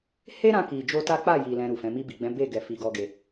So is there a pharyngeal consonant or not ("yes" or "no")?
no